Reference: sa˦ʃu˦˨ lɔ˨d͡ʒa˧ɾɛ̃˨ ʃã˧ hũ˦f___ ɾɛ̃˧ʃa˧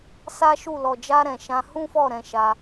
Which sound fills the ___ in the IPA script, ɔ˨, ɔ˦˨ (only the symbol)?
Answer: ɔ˦˨